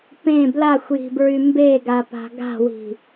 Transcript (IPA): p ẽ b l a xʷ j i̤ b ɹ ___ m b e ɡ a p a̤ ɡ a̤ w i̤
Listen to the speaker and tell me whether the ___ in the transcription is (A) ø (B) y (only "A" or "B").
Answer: B